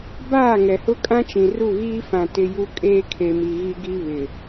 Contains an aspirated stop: yes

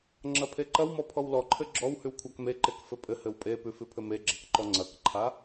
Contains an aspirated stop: yes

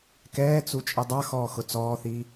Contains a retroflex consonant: no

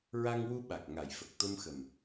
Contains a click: no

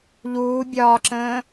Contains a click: yes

